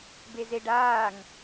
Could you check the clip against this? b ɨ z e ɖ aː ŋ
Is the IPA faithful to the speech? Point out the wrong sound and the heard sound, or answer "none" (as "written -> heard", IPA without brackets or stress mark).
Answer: ɨ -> e